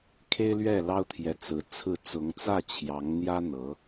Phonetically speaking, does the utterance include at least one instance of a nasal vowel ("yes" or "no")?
no